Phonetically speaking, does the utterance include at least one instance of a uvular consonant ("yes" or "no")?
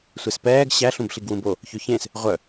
yes